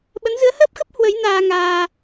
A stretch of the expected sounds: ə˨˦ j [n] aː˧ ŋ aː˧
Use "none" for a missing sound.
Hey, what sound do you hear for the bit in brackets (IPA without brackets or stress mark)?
n